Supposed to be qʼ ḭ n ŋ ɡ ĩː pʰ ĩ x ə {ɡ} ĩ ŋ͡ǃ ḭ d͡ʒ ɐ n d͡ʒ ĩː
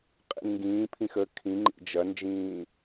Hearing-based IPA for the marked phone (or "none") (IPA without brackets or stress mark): kʰ